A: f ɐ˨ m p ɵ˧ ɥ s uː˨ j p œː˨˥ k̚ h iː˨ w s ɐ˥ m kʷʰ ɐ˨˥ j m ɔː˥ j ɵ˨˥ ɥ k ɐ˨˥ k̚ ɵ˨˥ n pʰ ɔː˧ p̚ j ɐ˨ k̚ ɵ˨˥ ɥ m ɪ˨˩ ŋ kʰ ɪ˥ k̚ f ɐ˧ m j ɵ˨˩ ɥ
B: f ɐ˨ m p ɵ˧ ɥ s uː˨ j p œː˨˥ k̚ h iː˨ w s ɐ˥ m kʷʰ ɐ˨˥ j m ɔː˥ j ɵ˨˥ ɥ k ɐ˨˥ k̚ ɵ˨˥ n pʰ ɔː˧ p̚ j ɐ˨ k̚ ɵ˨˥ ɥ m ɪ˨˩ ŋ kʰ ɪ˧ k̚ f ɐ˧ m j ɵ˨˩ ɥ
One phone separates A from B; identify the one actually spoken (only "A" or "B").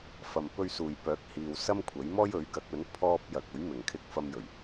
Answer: B